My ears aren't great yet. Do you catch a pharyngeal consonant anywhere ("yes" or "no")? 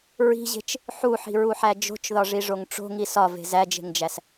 yes